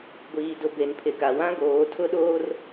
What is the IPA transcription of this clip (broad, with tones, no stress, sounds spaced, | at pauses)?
ɡʷ iː˨ d ʊ˨ b e˨ n pʰ ɪ˨ k a˨ w ã˦ ɡ oː˨˦ tʰ ʊ˦ ɗ oː˦ r